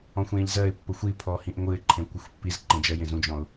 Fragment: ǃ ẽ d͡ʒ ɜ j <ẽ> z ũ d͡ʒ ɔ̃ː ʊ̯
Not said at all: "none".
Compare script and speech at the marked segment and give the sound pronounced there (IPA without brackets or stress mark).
ẽ